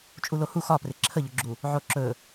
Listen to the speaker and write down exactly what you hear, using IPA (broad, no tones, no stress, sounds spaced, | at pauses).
t͡ʃʼ u l o h u x ɒ p r ɪ ǁʰ ə ʎ ɵ ɡ͡ǁ u | ʕ o ǁ ɵ